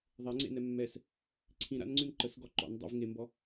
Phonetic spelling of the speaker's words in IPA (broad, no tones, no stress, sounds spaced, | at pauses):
ðˤ ɛ ŋ͡ǀ ḛ n ɛ mː ɛ s | ǀʰ ĩ ɾ a̰ n ŋ͡ǀ ʉ n ǃ ə s ɡ ɔ ǃ ɔ̰ n dˤ ə̰ v ŋ e m b ɔ